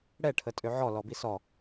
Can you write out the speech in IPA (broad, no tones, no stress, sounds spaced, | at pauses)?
ɽ ɛ ʈʰ ə tʼ ø ʕ ɔ l ɔ b i s ɔ